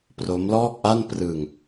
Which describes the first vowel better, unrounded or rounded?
rounded